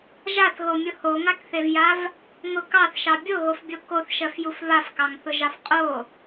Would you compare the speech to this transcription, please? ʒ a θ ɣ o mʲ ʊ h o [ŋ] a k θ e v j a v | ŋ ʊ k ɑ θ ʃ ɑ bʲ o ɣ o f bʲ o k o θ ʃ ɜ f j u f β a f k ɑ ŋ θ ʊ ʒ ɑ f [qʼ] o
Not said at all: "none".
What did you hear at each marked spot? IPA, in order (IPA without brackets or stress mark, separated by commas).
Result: ŋ, qʼ